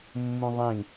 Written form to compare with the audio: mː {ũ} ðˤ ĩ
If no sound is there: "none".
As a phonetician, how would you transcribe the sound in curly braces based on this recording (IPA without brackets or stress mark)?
ũ